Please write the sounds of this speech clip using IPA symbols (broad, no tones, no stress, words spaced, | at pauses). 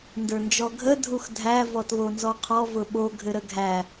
ndə˞nd͡ʒɔɡʱə dʱuxdʱæ vɔtβonzɔqʰɔ vʊɓo ɡʱɘɾəɡʱæ